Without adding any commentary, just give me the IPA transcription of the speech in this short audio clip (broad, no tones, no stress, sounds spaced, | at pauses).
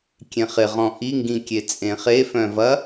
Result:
kʲ ẽ χ ɪ ʁ ɔ̃ ʔ i ŋ ɡ ĩ kʲ e t͡sʼ ẽ χ e f œ̃ v ɐ